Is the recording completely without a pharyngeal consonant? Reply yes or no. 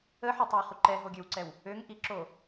no